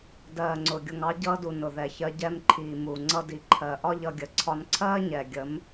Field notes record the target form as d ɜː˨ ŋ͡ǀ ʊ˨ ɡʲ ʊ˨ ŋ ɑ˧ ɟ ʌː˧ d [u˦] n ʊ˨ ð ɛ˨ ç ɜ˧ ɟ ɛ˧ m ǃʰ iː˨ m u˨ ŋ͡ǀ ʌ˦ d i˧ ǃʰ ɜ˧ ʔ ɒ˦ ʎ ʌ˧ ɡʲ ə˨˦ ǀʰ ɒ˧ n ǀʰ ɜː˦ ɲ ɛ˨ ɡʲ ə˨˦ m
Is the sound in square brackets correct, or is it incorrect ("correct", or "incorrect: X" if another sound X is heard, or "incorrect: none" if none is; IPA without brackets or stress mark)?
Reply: incorrect: u˨